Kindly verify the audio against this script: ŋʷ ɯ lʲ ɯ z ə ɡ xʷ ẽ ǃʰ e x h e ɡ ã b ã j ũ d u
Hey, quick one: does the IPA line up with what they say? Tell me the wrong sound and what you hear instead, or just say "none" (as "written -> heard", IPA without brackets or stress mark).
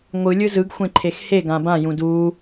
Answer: ə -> ɯ